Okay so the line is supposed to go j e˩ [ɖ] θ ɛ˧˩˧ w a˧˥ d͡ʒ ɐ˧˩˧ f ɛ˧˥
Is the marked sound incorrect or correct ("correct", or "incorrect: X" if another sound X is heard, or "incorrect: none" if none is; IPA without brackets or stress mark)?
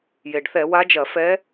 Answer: correct